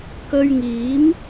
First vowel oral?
yes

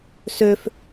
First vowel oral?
yes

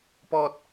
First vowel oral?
yes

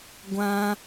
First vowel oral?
no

